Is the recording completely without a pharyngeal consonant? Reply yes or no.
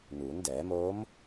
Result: yes